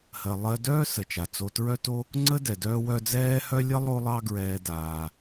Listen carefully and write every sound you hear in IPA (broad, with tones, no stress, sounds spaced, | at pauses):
h ɜ˩ lˠ ɜ˨ d œː˦ s ə˩ t͡ʃ a˩ t͡s o˨ t ɹ œ˦ t o˦ | ŋ͡ǀ ə˥ d ɛ˩ d œː˦ w œ˦ d͡z ɛː˥ h œ˥ lʲ ə˥ lˠ o˦ lˠ ɑ˦ ɡ ɹ ɛː˨ d aː˩